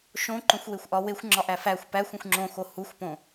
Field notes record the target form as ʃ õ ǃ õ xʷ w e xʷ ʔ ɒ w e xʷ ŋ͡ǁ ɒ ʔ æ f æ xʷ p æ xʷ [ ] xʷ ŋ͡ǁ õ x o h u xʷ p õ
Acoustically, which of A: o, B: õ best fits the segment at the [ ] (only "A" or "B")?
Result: B